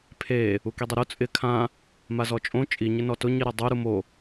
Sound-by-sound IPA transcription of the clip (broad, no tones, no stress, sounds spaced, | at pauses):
pʰ e | u k i dˤ e ɾ u t͡sʼ ɪ kʰ ã | m a z ɔ t͡ʃʼ õ t͡ʃʼ i ɲ ɪ n ɔ t ʊ ɲ i ɾ ɛ dˤ u ɾ u m o